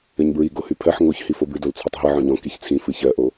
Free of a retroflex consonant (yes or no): yes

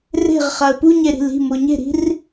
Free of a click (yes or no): yes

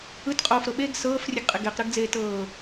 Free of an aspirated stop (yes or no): yes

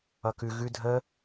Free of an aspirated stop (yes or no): yes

